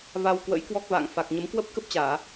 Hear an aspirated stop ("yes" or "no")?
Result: no